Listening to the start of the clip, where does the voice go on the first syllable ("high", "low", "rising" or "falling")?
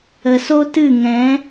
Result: low